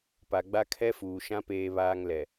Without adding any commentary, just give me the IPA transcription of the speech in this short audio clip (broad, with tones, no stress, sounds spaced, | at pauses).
p a˨ ɡ͡b a˦ kʰ ɛ˦ f uː˨ ʃ ã˦ p eː˦ β aː˦ ŋ l ɛ˨